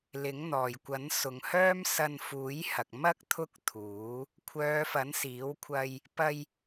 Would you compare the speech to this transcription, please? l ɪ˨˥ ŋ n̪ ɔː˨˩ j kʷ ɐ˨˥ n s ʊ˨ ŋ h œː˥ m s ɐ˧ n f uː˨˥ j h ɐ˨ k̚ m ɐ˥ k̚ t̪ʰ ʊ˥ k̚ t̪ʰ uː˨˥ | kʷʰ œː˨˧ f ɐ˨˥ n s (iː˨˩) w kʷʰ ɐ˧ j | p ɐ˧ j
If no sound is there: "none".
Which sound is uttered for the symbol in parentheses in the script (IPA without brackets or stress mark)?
iː˨˥